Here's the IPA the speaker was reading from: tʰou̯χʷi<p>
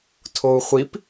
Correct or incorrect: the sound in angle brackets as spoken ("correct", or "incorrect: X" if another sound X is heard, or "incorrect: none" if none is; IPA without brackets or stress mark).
correct